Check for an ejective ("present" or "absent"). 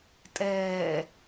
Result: present